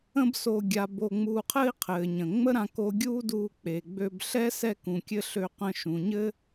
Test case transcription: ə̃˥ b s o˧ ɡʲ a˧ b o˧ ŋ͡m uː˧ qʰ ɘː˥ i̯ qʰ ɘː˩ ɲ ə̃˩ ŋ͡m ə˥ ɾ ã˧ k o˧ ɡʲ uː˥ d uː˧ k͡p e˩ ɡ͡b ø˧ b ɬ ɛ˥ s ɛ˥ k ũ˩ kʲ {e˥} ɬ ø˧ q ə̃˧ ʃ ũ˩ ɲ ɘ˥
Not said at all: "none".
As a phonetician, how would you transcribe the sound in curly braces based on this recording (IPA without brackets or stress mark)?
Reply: ɘ˥